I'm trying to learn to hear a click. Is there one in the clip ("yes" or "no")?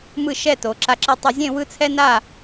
yes